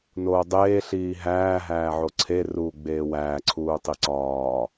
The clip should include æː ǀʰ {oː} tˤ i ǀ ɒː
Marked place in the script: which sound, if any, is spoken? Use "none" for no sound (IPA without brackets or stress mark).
uː